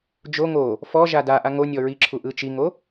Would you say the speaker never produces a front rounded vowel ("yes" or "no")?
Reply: yes